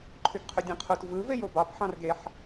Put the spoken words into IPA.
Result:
ǃʰ y ɡ qʰ y dʲ ɑ̃ qʰ u t v ɯ v e j o b ɑ p ħ ɑ̃ r ɡ e ħ

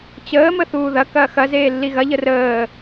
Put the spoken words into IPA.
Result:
t͡ɕ əː m ə θ uː ð ɐ k ɐː x ɐ z eː lː i ɣ ɐ ʎ ə r əː

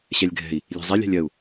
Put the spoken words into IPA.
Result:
ɕ ɛ lʲ ɡʱ ɛ̤ i̯ | lʲ e̤ zˤ e lʲ a̤ lʲ ɜ u̯

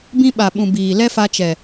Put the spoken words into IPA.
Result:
b ĩ˦ ɓ a˨ ɓ ũ˨ b iː˨ l ɛ˦ f a˧ t͡ʃ ɛ˨

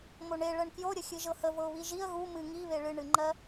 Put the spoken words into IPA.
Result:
m o ɳ e ɭ ɜ ɳ k j o ɾʲ ə xʲ ɨ ʒ ɤ h ə v ɤ ʊ̯ β i ʒ i ə̯ ɣ u m ɨ ŋ i β e ɭ ɨ ɳ ɨ ŋ͡ǃ ɜ

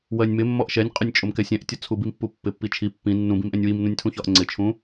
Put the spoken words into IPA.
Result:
w ɜ nʲ m ɪ mː ɔ ʔ ʃ ɛ nʲ qʼ ʊ nʲ t͡ʃʼ ʊ m k ɛ sʲ ɛ̃ ʔ tʲ ʌ t͡sʰ u b i m pː u pː ɪ pː i t͡ʃʰ i pː ĩ nː ũ b ĩ m ʔ ɛ̃ nʲ w i m n ũ nʲ tʰ ũ ç ɒ ʔ ŋ͡ǀ ɪ t͡ʃʰ ũ

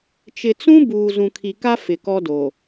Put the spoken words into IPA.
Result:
t͡ʃ ɪ˨ t͡s ũ˦ b uː˨ z ũ˨ kʰ i˨ k a˦ f ɪ˨ k ɔ˦ d o˨

